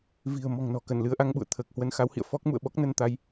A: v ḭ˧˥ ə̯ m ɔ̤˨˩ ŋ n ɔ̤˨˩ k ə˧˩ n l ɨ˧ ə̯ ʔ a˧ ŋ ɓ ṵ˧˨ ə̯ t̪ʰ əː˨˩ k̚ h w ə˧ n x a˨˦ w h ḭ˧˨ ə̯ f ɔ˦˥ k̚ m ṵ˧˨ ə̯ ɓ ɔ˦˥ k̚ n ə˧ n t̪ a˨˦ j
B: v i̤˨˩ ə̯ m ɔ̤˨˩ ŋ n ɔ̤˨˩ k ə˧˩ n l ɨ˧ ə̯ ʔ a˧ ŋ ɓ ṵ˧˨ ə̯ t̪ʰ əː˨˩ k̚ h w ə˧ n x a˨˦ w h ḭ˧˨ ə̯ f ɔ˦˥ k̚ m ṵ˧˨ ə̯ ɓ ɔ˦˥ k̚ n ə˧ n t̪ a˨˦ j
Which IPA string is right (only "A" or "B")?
B